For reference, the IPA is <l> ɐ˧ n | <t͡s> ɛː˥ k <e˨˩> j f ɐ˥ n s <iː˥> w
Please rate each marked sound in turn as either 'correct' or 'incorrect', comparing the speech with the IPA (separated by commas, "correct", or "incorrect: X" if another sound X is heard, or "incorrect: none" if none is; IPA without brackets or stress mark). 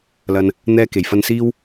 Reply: correct, incorrect: n̪, correct, correct